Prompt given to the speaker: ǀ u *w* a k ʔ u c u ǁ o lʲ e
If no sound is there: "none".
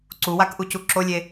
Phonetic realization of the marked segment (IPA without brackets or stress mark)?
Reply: w